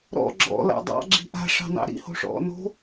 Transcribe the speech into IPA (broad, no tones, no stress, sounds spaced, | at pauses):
ɾ ɔ̰ ɡ͡ǁ ɔ̰ l a̰ dˤ ɑ̰ ɡ͡ǁ i̤ ʔ a̤ ʂ ɑ̤ n ɑ̰ ɾ ḭ h o̤ ʂ ɔ̰ n o̤